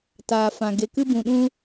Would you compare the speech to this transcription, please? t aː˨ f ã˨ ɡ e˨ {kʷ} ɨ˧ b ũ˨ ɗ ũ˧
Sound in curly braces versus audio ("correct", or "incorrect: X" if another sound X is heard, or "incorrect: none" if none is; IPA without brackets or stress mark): incorrect: k